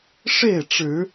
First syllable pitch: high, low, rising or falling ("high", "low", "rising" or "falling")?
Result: falling